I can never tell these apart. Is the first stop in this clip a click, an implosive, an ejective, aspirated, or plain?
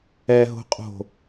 ejective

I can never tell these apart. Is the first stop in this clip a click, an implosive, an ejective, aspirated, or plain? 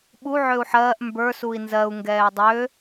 implosive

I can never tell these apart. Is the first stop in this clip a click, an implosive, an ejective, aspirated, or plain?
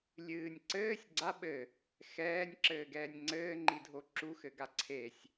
click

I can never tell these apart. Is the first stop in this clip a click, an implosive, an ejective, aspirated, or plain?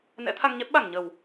aspirated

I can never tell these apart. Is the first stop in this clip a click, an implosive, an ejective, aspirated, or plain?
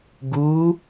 plain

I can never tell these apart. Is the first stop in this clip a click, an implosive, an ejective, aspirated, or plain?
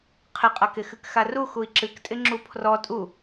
aspirated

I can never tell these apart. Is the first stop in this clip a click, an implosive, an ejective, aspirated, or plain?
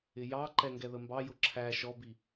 click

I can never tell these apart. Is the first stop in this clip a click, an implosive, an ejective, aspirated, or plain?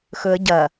plain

